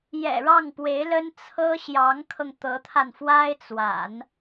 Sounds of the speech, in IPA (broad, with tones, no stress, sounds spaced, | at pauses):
j ɛ̰˨˩ ɻ ɑ˥˩ ŋ p w e˧˥ ɪ̯ l ə˥ n t͡sʰ ɤ˥ ɕ j ɑ˧˥ ŋ kʰ ɤ˧ ŋ t̪ ɤ˧˥ t̪ʰ a˧ n f w a˥ ɪ̯ t͡s w a̰˨˩˦ n